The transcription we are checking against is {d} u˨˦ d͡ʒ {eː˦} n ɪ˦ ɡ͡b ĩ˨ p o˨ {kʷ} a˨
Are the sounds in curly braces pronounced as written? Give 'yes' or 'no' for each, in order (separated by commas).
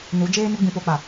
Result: no, yes, no